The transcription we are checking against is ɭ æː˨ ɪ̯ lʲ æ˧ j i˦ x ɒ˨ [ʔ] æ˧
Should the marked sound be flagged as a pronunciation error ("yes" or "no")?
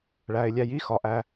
no